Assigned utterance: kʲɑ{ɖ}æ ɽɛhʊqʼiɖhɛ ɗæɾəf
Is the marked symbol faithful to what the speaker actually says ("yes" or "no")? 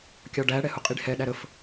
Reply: yes